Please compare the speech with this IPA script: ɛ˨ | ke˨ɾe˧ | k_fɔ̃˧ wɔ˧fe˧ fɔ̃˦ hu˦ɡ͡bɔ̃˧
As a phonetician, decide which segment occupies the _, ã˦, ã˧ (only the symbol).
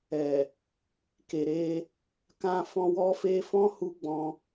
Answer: ã˧